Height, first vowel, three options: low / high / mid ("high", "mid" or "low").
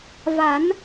low